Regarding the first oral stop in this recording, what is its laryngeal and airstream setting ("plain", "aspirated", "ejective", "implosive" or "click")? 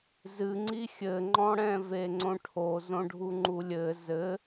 click